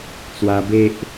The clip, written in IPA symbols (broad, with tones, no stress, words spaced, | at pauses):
t͡swa˧be˦ʔ